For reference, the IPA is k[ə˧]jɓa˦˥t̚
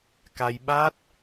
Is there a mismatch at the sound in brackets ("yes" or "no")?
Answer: yes